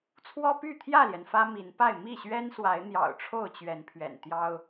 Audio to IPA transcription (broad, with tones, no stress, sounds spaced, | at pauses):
t͡sʰ w ɔ˦ p y˥˨ t̪ʰ j ä˥˨ l j ɛ˩ n f ä˦ m i˨˦ n p a˥˨ ɪ̯ m i˥˨ ɕ ɥ ɛ˦ n s w a˨˦ ɪ̯ n̪ j ɑ̰˨˩ ʊ̯ ʈ͡ʂʰ o˥˨ ʊ̯ t͡ɕ ɥ ɛ˨˦ n pʰ ɥ ɛ̰˨˩ n t̪ j ɑ˦ ʊ̯